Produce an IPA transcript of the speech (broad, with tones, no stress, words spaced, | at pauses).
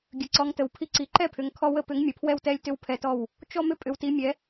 ɡʲə˨˦ǀɔ˨˦ŋtə˨˦wpʰi˦ ǀi˨˦ǃɛ˥˨pʰʏ˨˦ŋ kʰɔ˦wə˥˨ pʏ˨˦ŋ mʲə˨˦pʰwɛ˥˨wtɛ˦lʲtʏ˦w pʰɛ˦tɔ˥˨w | t͡ʃɔ˦ mʏ˦pʼʏ˨˦wti˨˦mʲɛ˨˦